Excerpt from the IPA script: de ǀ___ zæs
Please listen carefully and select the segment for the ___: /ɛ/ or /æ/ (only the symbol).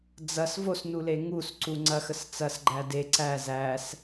æ